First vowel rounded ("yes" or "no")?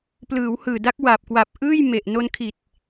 no